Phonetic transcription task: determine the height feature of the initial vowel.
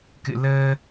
high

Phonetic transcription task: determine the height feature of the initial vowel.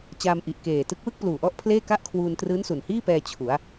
low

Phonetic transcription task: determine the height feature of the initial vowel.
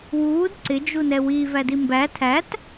high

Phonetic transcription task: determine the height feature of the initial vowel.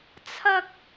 low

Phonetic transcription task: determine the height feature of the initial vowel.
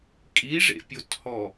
high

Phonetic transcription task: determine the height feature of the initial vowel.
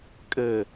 mid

